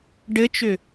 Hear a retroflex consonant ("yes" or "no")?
yes